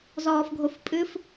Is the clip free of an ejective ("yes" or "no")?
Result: no